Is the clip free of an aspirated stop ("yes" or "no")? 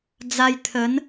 no